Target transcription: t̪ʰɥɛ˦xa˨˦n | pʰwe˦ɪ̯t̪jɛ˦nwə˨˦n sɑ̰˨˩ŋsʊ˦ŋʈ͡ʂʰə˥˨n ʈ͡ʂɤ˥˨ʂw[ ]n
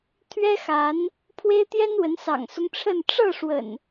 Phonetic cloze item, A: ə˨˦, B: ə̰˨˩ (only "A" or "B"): B